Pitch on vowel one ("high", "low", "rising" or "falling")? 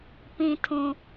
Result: high